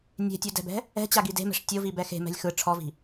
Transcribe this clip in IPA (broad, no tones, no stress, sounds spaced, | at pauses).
nʲ e̤ tʲ u d ɛ̤ b ɛ̤ | ɛ̤ t͡ɕ a ɡ i d e̤ m ɛ̤ ʂ tʲ o v i b ɛ x e̤ m ɛ̤ lʲ x ɯ ʈ͡ʂʰ ɔ v i̤